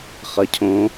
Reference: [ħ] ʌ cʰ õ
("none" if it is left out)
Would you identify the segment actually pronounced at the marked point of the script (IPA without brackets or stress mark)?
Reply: χ